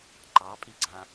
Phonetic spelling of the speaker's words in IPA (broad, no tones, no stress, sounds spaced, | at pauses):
ǃ ɑ pʼ i ɡ͡ǀ ã